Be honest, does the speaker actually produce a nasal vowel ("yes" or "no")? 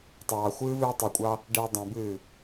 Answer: yes